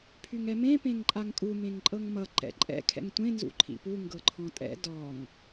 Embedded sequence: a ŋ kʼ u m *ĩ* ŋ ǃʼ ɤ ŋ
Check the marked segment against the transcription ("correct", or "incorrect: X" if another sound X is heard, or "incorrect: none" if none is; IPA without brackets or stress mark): incorrect: ẽ